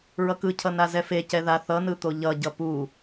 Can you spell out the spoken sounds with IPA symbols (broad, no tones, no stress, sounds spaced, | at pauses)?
ɹ ʌ k ɯ cʰ ʌ n a z ɛ f e c ɛ ð a θ ʌ n ɯ t̪ o ʎ ʌ ɟ ʌ p u